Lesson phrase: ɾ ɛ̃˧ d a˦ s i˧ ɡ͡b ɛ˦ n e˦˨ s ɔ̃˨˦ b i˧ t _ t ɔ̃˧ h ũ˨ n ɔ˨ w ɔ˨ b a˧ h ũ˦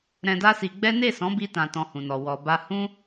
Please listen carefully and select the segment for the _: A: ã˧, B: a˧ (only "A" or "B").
A